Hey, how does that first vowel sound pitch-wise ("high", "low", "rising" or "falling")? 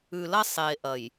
low